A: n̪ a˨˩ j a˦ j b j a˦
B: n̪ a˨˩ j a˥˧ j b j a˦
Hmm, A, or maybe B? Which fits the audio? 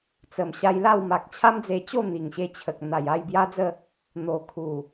B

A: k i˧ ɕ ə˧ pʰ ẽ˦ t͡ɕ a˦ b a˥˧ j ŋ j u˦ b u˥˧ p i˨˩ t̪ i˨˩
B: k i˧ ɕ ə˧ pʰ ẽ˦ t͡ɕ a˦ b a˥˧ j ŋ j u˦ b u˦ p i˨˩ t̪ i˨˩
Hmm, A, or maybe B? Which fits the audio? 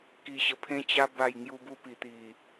B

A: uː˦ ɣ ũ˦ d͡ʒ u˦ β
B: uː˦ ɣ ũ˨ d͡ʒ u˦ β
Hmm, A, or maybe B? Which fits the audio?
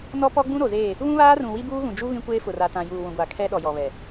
B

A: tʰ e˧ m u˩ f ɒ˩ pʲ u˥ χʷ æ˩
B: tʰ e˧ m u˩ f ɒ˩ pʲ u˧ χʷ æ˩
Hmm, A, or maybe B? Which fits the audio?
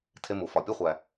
B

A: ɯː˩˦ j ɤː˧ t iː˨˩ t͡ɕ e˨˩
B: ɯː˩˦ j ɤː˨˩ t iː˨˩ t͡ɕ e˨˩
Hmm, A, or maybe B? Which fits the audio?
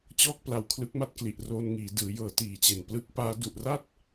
B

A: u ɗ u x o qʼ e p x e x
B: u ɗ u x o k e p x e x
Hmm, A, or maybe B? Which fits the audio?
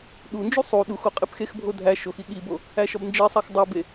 A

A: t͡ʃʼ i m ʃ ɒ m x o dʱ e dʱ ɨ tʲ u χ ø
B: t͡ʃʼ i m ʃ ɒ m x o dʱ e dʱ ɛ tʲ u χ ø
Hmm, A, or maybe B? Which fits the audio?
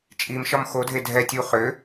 B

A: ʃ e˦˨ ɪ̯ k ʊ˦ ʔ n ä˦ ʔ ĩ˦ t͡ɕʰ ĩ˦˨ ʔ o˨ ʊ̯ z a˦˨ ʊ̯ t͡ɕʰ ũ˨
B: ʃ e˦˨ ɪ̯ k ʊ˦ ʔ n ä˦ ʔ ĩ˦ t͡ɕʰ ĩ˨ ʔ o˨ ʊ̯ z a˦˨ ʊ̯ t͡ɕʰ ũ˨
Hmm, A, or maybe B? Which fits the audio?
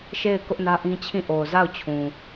A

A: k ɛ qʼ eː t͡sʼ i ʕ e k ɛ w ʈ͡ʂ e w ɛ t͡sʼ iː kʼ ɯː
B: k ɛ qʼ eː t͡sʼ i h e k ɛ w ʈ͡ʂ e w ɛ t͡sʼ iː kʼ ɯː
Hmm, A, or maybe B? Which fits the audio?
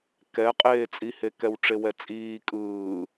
B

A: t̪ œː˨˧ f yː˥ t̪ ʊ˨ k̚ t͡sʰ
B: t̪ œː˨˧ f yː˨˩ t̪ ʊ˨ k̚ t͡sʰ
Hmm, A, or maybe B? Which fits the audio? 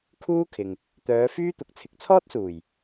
A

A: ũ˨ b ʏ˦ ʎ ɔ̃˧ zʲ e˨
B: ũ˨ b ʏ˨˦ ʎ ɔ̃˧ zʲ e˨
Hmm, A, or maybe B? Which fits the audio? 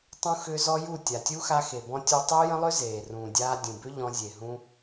A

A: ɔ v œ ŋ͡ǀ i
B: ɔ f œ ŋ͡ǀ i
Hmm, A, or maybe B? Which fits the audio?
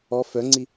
B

